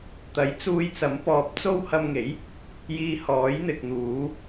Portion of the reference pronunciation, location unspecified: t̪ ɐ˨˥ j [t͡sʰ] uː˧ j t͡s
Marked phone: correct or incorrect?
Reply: incorrect